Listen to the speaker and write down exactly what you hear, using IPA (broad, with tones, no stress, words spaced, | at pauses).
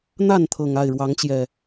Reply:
n̪a˥˨nt̪ʰɤ˨˩ŋ a˥˨ɪ̯ɻwɑ˨˦ŋt͡ɕjɛ˨˩